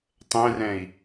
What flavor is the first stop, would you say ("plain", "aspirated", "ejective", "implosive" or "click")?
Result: plain